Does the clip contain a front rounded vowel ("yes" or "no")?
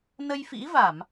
no